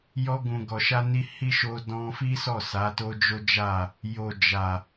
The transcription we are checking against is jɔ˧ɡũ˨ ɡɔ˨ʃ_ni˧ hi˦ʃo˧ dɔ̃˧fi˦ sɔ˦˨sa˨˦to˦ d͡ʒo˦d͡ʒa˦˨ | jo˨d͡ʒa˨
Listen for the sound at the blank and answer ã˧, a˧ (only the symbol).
a˧